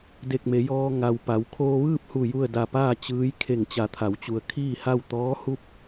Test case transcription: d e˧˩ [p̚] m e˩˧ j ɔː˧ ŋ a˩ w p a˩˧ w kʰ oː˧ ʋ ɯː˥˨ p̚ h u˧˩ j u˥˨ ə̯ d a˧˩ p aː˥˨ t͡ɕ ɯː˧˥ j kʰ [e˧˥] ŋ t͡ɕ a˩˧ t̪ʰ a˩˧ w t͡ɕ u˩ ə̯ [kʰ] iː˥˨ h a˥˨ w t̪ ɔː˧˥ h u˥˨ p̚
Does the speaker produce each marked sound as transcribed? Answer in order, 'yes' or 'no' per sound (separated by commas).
no, no, yes